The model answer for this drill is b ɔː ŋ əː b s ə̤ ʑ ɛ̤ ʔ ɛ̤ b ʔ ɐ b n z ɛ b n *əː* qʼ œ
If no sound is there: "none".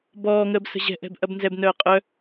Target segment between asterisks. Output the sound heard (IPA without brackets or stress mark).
œː